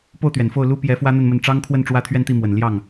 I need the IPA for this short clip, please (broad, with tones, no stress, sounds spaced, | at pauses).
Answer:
p o˥˩ ʊ̯ t̪ ɥ ɛ˨˩ n f o˥˩ ʊ̯ l u˥ p j ɛ˧˥ f w ä˥ n̪ ə˥˧ n m ə˥˩ n ʈ͡ʂ ɑ˥ ŋ kʰ w ə˥˧ n ʈ͡ʂ w ä˥˧ t̪ʰ ɥ ɛ˥˧ n t̪ i˥˩ m w ə˨˩ n l j ɑ˥˩ ŋ